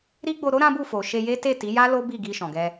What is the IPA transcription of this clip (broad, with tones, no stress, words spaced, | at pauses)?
ɾi˦ɡ͡bo˧ɾo˦ ɾã˦bu˦˨fo˨ ʃe˧je˦ te˦˨ ti˨˦ja˦ lo˦bi˦˨ɡi˧ ʃɔ̃˨ɡɛ˧